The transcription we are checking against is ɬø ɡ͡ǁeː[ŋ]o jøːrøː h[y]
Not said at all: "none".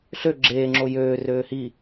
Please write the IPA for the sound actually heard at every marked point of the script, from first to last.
ŋ͡ǁ, i

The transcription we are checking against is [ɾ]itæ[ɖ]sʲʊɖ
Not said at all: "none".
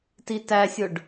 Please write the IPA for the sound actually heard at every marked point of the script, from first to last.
t, none

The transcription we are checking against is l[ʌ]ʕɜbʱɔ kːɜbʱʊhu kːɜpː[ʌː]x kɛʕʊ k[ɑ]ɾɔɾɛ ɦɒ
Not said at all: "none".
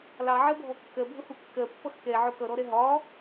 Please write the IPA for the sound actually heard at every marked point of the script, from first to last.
ɑ, ʌ, ʌ

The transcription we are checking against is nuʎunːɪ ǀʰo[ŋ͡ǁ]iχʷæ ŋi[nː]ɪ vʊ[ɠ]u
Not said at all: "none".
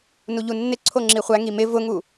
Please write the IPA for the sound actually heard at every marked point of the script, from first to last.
ŋ͡ǁ, m, ŋ

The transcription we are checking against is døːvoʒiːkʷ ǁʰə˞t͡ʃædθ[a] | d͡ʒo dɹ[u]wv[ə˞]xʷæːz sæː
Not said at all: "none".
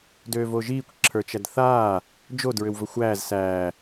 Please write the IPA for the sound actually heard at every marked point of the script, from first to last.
aː, ʏ, ə

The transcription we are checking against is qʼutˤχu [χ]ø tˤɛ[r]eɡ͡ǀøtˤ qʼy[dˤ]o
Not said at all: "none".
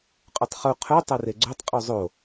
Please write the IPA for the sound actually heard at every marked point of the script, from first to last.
qʰ, r, zˤ

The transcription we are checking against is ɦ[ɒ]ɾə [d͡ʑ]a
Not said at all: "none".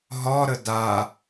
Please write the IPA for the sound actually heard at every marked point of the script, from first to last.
ɒ, d

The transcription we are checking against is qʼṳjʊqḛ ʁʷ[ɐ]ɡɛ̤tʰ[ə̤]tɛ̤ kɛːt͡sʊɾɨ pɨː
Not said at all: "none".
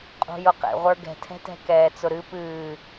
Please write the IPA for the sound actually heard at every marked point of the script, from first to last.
ə˞, ɛ̤

